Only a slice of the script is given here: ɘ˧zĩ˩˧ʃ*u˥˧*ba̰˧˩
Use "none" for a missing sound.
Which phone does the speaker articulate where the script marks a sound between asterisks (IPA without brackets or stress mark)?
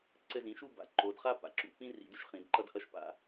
u˥˧